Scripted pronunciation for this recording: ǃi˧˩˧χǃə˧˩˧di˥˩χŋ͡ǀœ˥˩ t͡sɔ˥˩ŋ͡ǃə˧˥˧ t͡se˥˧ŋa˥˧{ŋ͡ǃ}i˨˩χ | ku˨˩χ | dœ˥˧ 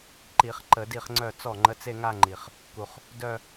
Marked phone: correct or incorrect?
correct